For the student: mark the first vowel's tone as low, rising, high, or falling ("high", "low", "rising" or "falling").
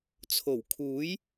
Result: low